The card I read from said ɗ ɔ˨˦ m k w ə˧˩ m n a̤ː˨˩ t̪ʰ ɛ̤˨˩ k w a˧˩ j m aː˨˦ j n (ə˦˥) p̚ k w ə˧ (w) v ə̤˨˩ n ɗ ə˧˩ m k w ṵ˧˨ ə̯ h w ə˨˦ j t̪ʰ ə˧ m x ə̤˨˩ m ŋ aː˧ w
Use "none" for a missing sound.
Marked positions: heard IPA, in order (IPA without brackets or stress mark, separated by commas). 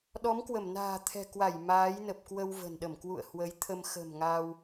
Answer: ə˨˩, w